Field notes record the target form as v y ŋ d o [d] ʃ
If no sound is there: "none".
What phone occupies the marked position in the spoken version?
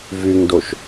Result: none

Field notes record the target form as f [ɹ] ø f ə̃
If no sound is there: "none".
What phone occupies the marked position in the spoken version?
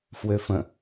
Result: w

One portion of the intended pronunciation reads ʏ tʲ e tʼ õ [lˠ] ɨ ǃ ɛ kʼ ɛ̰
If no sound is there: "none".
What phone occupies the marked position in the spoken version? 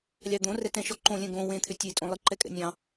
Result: lˠ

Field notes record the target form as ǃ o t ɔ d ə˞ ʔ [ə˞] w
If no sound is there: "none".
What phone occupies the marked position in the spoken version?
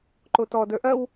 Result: ɐ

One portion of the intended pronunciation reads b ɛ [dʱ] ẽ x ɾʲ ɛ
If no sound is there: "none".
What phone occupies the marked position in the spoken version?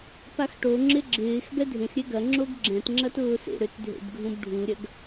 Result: dʱ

